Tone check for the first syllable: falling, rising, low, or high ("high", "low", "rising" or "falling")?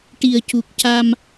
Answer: low